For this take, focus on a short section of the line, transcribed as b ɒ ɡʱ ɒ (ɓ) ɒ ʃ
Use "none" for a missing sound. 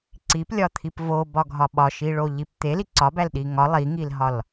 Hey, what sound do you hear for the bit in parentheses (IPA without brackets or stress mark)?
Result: ɓ